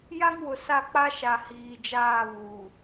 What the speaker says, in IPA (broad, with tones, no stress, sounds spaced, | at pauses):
j a˦ ŋ w ʊ˨ s a˦˨ k͡p a˦ ʃ a˨ h iː˨ d͡ʒ aː˦˨ β uː˨